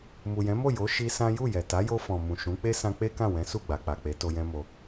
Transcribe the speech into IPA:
m u˨ j ɛ̃˨˦ m o˦˨ j o˨˦ ʃ i˧ s ã˦ j u˦˨ j ɛ˨ t a˨˦ j o˧ f ɔ̃˨ m ũ˨ ʃ ũ˨˦ k͡p e˦ s ã˧ k͡p e˦ k ã˦˨ w ɛ̃˨˦ s u˦˨ ɡ͡b a˨ k͡p a˨ k͡p e˨˦ t o˧ j ɛ̃˦ m o˧

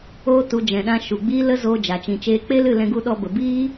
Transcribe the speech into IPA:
oː˧ t u˨ d͡ʒ ɛ̃˨ ɗ ã˧ ʃ u˨ ɡ͡b iː˦ l ə˦ z oː˧ d͡ʒ a˨ t͡ʃ ĩ˨ t͡ʃ eː˧ k͡p e˦ l ɨ˦˨ l ɛ̃˧ ɡ u˧ ɗ ɔ˧ b ə˨ b iː˦

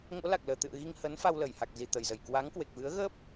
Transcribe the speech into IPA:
ŋ o̰˧˥ l a˨˩ k̚ l əː˧˩ t̪ ɨ̰˧˨ ə̯ ɣ i˧ ŋ h ə˨˦ n f a˧ w l ə˧˩ j h a˨˩ k̚ z i˨˩ t̪ ə˧˩ j z ə˧˩ j k w a˨˦ ŋ k w e˨˩ k̚ v ɨ˨˦ ə̯ ɣ ə˦˥ p̚

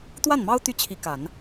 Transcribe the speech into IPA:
t̪ w a˥˩ n m ɑ˥ ʊ̯ t̪ y˥˩ t͡ɕʰ i˧˥ k a˨˩˦ n

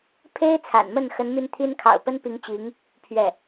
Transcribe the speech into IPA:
pʰ e˥ ɪ̯ t͡sʰ a̰˨˩ n m ə˥˩ n x ə˧˥ n m y˥˩ n t̪ʰ i˥ n kʰ ɑ̰˨˩ ʊ̯ p ə˥ n p i˧˥ ŋ t͡ɕ i˧˥ ŋ | pʰ ɥ ɛ˥˩

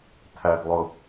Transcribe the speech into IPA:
tʰ æ ɡ lˠ ʊ

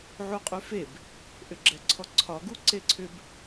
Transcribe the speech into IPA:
ʕ u qʼ y f e b | ʔ ʏ ɡ͡ǁ ɛ ǀʰ ɔ ǀʰ ɒ ɡ u ǀ e ǀʰ ʏ b

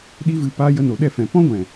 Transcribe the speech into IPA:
ɗ i˦ v ɨ˧ p aː˦ j ə˧ n o˨ ɗ ɛ˦˨ f ɛ̃˨ p ɔ̃˦ ɡʷ ɛ̃˨

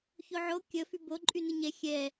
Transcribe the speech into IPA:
ç o ʕ o kʲ ə f y b o ǃʼ y n ɯ ɲ ɛ xʲ ɛ

